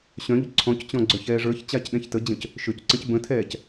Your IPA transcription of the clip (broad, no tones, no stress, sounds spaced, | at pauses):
ɕ œ̃ ʎ o ǀʰ ɔ̃ c t͡ɕ ɔ̃ ɡ͡ǀ œ ç ɛː ʐ ə˞ ç t͡ɕ aː c ɗ ɛ̃ ç t ə d͡ʑ ə̃ c | ʃ ø c ǀ ə̃ c b ə̃ tʰ ɛː c